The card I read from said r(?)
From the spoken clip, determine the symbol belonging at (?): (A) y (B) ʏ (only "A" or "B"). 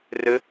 B